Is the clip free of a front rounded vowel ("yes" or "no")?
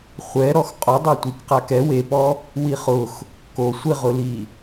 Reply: yes